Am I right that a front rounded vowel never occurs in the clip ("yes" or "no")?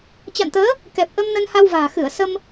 yes